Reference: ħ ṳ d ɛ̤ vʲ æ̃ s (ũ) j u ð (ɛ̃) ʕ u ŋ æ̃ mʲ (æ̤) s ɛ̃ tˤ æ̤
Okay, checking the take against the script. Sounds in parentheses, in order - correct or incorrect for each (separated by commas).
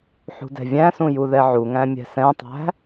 correct, incorrect, incorrect